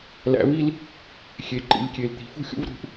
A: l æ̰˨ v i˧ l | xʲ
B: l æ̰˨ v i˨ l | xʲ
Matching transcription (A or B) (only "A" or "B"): A